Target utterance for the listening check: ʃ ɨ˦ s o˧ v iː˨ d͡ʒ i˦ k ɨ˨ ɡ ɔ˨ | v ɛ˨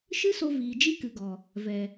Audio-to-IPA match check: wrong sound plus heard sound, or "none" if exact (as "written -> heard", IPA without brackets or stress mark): none